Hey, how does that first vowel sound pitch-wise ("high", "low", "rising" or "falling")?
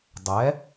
rising